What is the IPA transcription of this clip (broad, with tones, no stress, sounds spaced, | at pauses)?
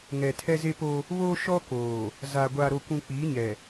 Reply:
ŋ ɛ˨ tʰ ɛ˦ z e˦ p o˦ | β oː˦ ʃ ɔ˦ k oː˨ | z a˨ ɡʷ a˨ ɾ o˨ kʷ ũ˨ k͡p iː˨˦ ɲ ɛ˨